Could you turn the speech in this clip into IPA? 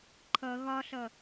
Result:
ǃʰ ʌ ɣ ɒ ɬ ʌ

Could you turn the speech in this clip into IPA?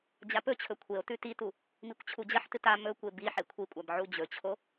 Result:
d͡ʑ a p ɵ t͡ɕʰ ɵ kʷʰ e o̯ t ʉ t i t u | m i kʷ t͡ɕʰ u d͡ʑ ɐ ħ t ɨ t a m ɵ kʷ e b i ħ e kʷʰ i kʷʼ a b ʕ u d͡ʑ ɵ t͡ɕʰ o

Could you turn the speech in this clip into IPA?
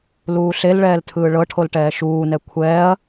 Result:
l uː ɬ e l ɭ ɛː l tʰ ɯː ɭ ɤ ʈʰ o l ʈ ɛː ʃ uː n ɛ kʷʰ ɛː ɐ̯

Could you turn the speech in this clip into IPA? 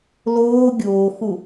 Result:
l oː ɡʲ oː x u

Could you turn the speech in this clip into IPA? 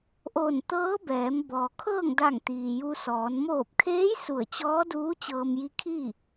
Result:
ʔ oː˧˩ n t̪ ɤː˧˥ b ɛː˩˧ m b ɔː˩ kʰ ɤː˥˨ ŋ d a˧˩ ŋ t̪ iː˩ j u˧ s ɔː˩˧ n m oː˧˩ p̚ kʰ eː˧˥ j s u˧˩ ə̯ t͡ɕ ɔː˧˥ d uː˧˥ t͡ɕ ɤː˧ m j i˧˥ kʰ iː˥˨

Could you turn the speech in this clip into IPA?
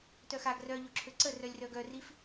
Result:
t œ x a ɡ r œ ʎ o ǁʰ ø ǀ ə r œ lʲ r œ ɡ œ r i f

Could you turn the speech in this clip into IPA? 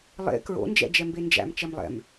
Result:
lˠ ḛ k ɹ o̰ n d͡ʒ ɛ̰ d͡ʒ ɛ m b e n d͡ʒ æ̰ m t͡ʃ ɛ m lˠ ɛ̰ m

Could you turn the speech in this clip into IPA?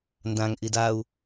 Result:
n d ã ŋ ʔ i d a u̯

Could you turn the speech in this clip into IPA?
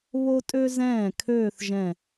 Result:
β o˥ tʼ ø˥ z ɛ̃ː˥˩ kʰ øː˥˧ θ ʒ ɛ̃˥˩

